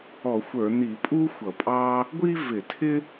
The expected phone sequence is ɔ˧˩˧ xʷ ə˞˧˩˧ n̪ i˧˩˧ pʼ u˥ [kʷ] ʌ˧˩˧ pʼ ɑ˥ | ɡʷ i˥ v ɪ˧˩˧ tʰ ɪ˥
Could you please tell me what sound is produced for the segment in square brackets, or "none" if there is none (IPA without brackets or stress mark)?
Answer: xʷ